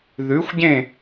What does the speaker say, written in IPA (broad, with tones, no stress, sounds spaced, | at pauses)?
ð ʉ˩˥ xʷ ɟ ẽ˥˩